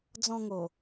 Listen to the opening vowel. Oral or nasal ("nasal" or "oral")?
nasal